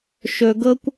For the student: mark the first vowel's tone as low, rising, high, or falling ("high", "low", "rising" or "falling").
low